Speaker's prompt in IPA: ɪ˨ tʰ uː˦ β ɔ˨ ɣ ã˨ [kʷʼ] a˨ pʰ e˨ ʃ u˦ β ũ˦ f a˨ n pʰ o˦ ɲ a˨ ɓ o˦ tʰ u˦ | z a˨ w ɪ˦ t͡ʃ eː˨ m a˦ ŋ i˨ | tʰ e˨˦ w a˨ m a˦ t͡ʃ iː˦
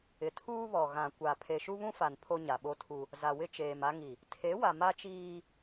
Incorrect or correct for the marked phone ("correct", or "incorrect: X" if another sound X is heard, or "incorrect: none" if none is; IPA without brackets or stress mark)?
incorrect: kʷ